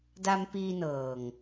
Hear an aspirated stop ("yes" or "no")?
no